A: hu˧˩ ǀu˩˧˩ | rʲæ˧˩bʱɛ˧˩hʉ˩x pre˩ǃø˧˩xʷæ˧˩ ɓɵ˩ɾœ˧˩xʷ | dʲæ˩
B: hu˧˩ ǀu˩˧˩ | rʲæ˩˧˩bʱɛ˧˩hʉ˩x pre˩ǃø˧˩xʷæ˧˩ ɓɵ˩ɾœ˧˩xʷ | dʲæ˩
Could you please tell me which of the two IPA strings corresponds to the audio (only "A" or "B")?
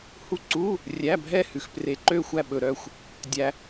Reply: B